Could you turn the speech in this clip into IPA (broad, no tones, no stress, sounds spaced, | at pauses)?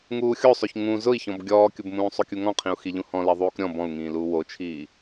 ŋ uː xʲ o sˤ o ç ŋ ũ z ʊ i̯ ç ɔ̃ b ɡʲ ɔː kʲ ʊ b m ũː sˤ o kʲ u ŋ ɔ̃ qʰ ĩ u̯ x i ʎ ũ h ɔ̃ l ɛ ðˤ uː k ɾʲ ɔ̃ b ɔ̃ u̯ ŋ ĩː l uː w o t͡ʃʰ iː